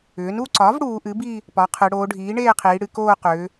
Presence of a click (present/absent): present